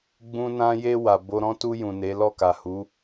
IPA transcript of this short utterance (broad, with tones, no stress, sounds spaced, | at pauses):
ɡ͡b ũ˧ n ã˧ j e˧ w a˨ b o˧ ɾ ɔ̃˦ t u˧ j ũ˨ n e˨˦ l ɔ˦˨ k a˨ h u˨˦